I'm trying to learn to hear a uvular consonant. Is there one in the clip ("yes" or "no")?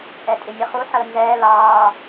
yes